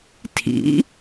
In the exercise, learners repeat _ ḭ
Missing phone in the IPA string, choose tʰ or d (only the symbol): tʰ